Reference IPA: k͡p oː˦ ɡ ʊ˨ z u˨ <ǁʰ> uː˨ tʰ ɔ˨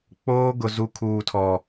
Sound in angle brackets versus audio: incorrect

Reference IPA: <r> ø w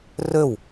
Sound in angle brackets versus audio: correct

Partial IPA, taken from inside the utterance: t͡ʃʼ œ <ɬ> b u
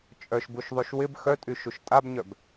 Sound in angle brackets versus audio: incorrect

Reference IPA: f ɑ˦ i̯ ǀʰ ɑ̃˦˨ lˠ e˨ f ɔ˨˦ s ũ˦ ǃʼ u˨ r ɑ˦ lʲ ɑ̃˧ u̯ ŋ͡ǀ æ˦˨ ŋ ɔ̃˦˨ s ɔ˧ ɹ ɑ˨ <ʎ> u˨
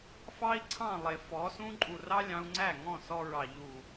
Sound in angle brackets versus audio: correct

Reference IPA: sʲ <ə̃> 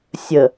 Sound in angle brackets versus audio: incorrect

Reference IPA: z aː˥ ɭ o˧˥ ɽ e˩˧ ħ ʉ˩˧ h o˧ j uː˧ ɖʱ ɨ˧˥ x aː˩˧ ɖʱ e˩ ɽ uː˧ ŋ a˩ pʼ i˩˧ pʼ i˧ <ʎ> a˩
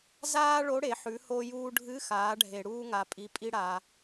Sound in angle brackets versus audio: incorrect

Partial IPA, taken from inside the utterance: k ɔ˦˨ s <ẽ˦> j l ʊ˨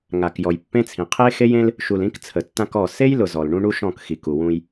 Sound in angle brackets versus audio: incorrect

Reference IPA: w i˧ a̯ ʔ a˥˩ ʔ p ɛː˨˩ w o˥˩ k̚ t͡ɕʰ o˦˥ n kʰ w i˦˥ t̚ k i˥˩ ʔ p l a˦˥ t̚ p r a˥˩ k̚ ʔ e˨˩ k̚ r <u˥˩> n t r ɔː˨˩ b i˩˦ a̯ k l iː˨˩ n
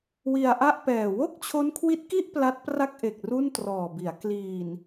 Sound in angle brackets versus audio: correct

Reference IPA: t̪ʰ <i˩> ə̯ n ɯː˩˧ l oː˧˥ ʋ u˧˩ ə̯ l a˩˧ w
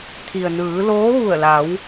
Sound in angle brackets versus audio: correct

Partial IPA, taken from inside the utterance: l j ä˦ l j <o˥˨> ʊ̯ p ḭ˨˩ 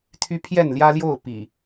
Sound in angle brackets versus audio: correct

